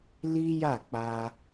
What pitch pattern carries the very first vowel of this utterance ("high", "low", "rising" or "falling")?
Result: high